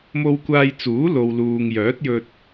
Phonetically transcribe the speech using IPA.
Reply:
m o˧ w kʷ aː˧ j t͡s uː˨˥ l o˨ w l uː˨ ŋ j œː˨˥ t̚ j ɵ˧ t̚

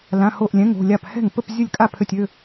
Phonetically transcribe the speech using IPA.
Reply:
l ã˧˥˧ h o˥˧ ʔ lʲ ɛ̃˧˥˧ ŋ o̤˥˧ lʲ a˥˩ p h ɛ̤˥˩ ŋ p ə˥˧ p zʲ ə˥˩ lʲ kʼ a˥˩ pʰ ø˥˧ tʲ ø˧˥˧

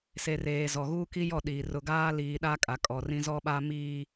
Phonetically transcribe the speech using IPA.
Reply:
s e˨ r eː˨ z ɔ˨ ɣ uː˦ k i˦ j ɔ˦˨ ɗ iː˨ r ʊ˨ ɡ aː˦ l iː˨ ɗ a˦ kʼ a˨ kʼ ɔ˨ r ĩ˦ z ɔ˦ ɓ a˦ m iː˦

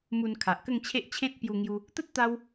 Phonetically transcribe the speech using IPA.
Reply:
m u˧ n kʰ a˨ ʔ k ə˥˧ ŋ t͡ɕʰ e˦ ʔ t͡ɕʰ ẽ˦ t̚ p j u˧ ŋ j u˧ | t̪ ə˦ t̚ t̪ a˧ w

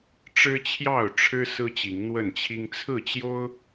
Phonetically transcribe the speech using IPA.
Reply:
ʈ͡ʂ ɻ̩˦ t͡ɕʰ j ɑ˥˨ ʊ̯ ʈ͡ʂʰ ɻ̩˦ s ɹ̩˦ t͡ɕ i˨˦ ŋ n̪ w ə˥˨ n t͡ɕʰ i˦ ŋ t͡sʰ ɹ̩˥˨ t͡ɕ j o˦ ʊ̯

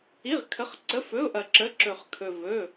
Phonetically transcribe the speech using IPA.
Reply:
i˧˥˧ ʁ kʰ ə˧˥˧ χ ǀ ə˧˥˧ f ɵ˧˥˧ ʊ̯ ʔ ɐ˧ ǁ ə˧˥˧ ǁ ɵ˧ χ kʰ ɵ˧ v ɵ˧˥˧

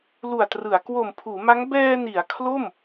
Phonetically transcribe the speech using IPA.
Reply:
l u˨˩ a̯ t r ɯ˩˦ a̯ k w o˨˩ m pʰ uː˩˦ m a˦˥ ŋ b ɛː˧ n i˩˦ a̯ kʰ l o˥˩ m

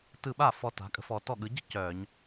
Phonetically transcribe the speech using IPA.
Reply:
t ɯ˧˩ ɓ a˥˩ f ɔ˧ t a̤˩˧ kʼ ə̤˧ f ɔ˩˧ t ɔ˧˩ ɠ ɯ˩˧ ɟ ə̤˥ c œ˧˩˧ ɲ

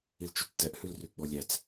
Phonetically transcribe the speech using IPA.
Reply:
i l t͡ʃ ʉ t͡s t ɛ ʔ h ʉ l r y ɡ͡b ɔ lʲ æ t͡s

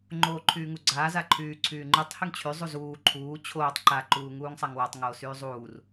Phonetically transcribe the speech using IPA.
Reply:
ŋ͡ǃ oː ǃʰ yː ŋ u ɡ͡ǀ aː z a ǃʰ yː ǀʰ yː ŋ͡ǃ y tˤ h y ŋ t͡ɕʰ y zˤ u z uː ǃʰ uː t͡ɕʰ oː tˤ ǃ a ǃ uː ŋ uː ŋ sˤ a ŋ w a tˤ ŋ oː s yː zˤ uː r

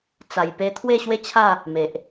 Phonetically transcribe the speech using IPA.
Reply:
t͡s a˨˩ j p e˧ t̪ʰ w e˥˧ ɕ w e˦ t͡ɕʰ a˥˧ | m e˨ ʔ

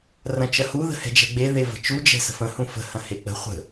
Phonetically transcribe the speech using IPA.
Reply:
r ɐ̃ t͡ʃ ɐ h u ð ə̤ h ɛ̤ d͡ʒ ɛ̤ ɡ͡b e ð e v ə̤ t͡ʃ u d͡ʒ ɛ̤ s ə̤ f ə̃ h ũ f ə̤ h ɐ̃ h e k͡p ə̤ χʷ ə̤

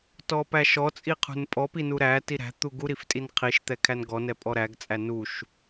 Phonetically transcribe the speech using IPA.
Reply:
t ɔ p æ ʃ ɔ t͡sʼ i qʰ ṳ n pʼ ɔ p i n u ɾ æ t i ɾ æ̤ t̪ u ɡ u ɾ i f tʼ i n qʰ i ʃ t̪ ɛ kʰ æ n ɡ ɔ n ɛ pʼ ɔ ɾ æ ɡ t͡sʼ æ n u ʃ

